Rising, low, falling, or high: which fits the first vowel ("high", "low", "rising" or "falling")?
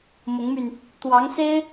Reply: rising